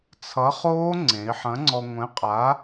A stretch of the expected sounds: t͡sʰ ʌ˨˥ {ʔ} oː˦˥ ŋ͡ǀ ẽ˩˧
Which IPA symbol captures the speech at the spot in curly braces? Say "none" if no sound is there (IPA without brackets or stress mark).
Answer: χ